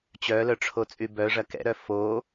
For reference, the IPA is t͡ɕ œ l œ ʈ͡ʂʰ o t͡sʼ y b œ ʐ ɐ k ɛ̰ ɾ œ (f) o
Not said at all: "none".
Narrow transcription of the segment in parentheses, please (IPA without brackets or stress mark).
f